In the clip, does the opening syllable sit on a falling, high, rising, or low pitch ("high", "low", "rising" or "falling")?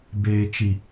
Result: low